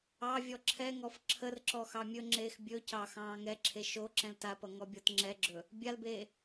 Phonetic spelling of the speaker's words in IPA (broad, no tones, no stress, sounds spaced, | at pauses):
ɑ vʲ ɔ ǁʰ ɛ ŋ ɔ f ǁʰ ə r ǁ ɔ x ɑ mʲ ɵ ŋ͡ǁ eː x bʲ ɵ c ɑ x ɑ̃ː ŋ ɛ ǁʰ e ʃ o ǁ ɛ̃ l t a p ʌ ŋ ɔ bʲ ɔ t ŋ͡ǁ ɛ ɡ͡ǁ ɵ | bʲ a l b eː